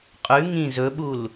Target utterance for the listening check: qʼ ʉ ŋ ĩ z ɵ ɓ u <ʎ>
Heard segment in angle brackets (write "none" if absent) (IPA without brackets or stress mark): l